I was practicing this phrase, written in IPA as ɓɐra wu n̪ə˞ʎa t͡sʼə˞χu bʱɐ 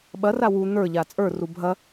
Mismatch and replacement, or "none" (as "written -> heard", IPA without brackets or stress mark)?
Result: χ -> r